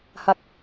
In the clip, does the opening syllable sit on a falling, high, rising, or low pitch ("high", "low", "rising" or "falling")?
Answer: low